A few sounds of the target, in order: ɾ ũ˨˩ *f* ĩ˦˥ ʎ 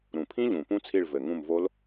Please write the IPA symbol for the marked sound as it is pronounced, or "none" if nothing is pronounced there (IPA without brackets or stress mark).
pʰ